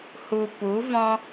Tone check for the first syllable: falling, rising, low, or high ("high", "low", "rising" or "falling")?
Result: low